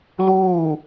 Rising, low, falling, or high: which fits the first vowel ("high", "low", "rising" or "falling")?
falling